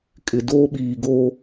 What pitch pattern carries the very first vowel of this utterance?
low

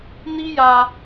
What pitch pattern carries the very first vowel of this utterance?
high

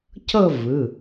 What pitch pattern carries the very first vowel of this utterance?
falling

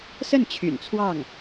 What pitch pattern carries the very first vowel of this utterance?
falling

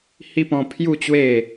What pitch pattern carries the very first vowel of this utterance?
high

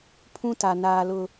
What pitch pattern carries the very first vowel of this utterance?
high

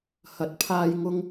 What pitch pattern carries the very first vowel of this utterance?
rising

